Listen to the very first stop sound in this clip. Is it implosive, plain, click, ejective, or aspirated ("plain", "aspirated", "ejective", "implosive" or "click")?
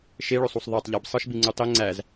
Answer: plain